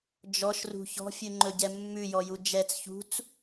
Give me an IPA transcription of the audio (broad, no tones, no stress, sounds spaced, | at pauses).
d͡ʒ ɔ ʃ r ṳ ç ɔ̤ fʲ ʉ ŋ͡ǃ ɵ ɟ ɛ mː ʉ j ɔ j u d͡ʒ ɛ t͡s ç ṳ t͡s